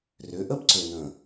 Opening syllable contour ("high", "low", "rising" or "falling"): rising